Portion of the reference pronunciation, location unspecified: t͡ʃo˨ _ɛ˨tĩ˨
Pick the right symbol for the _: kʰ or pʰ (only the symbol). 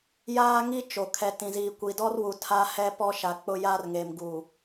kʰ